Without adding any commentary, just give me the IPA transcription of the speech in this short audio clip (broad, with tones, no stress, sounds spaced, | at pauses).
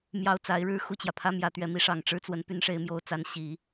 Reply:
m j ɑ˥˩ ʊ̯ t͡s a˧˥ ɪ̯ ɻ ɻ̩˥ x u˥˩ t͡ɕ j ä˩ pʰ ä˥ m j ä˧˥ t̪ ɥ ɛ˧˥ m i˧˥ ʂ ɑ˨˩ ŋ ʈ͡ʂ ɻ̩˥ t͡s w ə˧˥ n p y˧˥ n ʂ e˧˥ ɪ̯ m j o˧˥ ʊ̯ t͡s a˧˥ n ɕ i˨˩˦